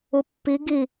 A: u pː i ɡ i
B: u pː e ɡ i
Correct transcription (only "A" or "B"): A